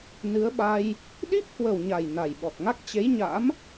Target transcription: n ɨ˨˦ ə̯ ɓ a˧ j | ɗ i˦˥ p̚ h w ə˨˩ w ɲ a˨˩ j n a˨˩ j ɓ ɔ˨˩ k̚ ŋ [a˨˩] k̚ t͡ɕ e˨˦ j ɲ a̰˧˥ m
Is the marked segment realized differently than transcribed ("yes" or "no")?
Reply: yes